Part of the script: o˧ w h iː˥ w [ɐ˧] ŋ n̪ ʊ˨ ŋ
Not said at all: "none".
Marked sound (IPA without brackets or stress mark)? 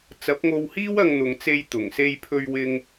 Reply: ɐ˧